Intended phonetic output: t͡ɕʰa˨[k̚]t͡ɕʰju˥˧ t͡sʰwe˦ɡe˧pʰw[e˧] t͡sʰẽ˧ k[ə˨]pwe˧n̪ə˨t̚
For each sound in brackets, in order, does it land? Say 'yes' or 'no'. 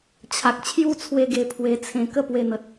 yes, yes, no

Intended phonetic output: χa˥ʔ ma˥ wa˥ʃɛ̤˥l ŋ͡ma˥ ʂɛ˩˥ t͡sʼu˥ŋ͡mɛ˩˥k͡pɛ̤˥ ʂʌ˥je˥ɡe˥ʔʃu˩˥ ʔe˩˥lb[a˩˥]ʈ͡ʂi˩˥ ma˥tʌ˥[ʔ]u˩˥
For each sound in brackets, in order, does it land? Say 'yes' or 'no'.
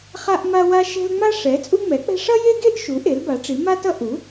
yes, yes

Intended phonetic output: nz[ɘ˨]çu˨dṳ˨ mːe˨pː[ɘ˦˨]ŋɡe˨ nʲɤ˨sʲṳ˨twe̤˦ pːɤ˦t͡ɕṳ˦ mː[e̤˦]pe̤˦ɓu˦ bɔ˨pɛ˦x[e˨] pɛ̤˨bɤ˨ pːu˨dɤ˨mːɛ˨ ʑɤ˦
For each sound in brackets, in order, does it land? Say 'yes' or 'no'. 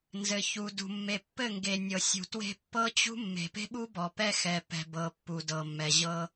yes, yes, no, no

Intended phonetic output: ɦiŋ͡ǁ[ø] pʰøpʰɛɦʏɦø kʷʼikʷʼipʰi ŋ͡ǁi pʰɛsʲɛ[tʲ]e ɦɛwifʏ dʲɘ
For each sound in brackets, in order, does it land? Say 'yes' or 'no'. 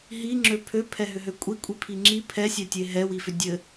yes, yes

